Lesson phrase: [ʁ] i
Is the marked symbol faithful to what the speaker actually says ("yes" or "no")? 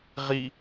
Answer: yes